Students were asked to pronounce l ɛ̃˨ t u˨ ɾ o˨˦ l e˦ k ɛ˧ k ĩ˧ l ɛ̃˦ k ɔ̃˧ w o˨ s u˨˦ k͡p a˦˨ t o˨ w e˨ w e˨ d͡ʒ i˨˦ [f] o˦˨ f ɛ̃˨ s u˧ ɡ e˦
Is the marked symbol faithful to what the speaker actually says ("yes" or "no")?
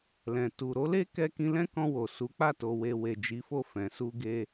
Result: yes